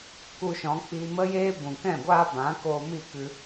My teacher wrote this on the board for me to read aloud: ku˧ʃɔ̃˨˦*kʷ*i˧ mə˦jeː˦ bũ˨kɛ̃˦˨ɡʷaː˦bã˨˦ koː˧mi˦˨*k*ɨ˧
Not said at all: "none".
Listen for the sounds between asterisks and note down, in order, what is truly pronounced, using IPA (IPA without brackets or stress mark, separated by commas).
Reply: k͡p, k